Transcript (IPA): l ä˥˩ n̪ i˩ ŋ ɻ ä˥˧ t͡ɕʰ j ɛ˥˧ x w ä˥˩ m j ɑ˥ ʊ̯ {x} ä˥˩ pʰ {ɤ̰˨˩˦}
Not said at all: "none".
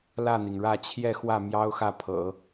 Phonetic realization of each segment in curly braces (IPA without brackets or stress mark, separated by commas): x, ɤ̰˨˩˦